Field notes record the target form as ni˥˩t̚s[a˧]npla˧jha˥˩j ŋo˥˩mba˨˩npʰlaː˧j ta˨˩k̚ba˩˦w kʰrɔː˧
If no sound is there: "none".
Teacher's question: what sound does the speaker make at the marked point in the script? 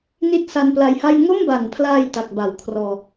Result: a˧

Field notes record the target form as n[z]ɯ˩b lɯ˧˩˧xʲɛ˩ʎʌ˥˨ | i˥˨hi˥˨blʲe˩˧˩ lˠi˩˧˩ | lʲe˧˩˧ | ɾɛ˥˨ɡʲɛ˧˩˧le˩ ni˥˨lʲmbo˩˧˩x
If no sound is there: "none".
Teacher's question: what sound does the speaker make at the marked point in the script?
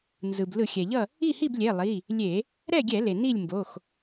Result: z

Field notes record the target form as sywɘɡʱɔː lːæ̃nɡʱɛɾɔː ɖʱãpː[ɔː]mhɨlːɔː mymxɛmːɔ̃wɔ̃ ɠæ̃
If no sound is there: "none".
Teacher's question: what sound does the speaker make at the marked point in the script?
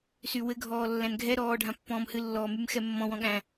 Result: ɔ̃ː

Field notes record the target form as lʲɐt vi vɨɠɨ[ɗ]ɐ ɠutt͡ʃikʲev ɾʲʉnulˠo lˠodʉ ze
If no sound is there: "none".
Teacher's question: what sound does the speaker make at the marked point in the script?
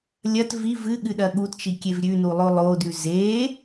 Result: ɗ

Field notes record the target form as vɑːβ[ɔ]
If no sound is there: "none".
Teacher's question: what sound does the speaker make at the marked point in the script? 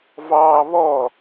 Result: ɔ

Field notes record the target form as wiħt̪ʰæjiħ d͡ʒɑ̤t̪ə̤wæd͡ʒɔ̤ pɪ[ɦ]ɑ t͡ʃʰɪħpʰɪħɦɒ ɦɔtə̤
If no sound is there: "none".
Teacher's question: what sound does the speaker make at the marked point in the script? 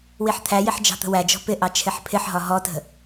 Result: ʔ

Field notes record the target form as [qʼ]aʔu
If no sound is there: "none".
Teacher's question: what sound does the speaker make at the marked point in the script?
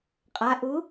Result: qʼ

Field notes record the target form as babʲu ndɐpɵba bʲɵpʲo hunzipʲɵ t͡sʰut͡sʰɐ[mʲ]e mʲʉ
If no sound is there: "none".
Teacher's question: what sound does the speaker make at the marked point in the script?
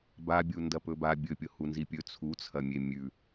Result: mʲ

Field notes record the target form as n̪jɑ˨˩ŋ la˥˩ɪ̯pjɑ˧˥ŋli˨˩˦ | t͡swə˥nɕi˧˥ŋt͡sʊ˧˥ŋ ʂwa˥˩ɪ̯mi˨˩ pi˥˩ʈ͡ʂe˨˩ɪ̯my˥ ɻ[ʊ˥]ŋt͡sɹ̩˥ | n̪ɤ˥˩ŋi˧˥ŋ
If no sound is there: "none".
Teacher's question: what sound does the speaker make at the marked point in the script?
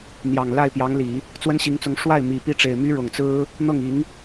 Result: ʊ˨˩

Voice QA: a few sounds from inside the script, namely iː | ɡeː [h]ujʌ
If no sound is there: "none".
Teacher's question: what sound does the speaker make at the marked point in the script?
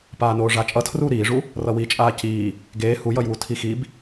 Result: h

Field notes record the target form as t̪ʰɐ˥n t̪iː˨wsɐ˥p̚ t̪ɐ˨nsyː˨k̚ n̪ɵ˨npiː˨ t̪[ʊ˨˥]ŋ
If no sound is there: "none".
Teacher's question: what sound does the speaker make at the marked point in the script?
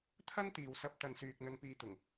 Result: ʊ˨˩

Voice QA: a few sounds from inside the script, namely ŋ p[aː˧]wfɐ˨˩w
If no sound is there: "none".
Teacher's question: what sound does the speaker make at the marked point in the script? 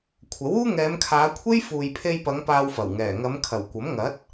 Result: aː˧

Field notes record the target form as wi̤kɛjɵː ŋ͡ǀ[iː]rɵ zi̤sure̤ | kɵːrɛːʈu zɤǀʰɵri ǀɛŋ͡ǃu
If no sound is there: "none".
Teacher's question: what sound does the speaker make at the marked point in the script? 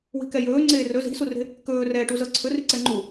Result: eː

